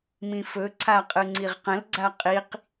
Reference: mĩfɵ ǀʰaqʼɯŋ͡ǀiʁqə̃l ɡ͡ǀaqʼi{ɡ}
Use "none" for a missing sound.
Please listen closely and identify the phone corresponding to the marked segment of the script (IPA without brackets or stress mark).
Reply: q